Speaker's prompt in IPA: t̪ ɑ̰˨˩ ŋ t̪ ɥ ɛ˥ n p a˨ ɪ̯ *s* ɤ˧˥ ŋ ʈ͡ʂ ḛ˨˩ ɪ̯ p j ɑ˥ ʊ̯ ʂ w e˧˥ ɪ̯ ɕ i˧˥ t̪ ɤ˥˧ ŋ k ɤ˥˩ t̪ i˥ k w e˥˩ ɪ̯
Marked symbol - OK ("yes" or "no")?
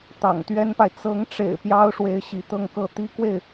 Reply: no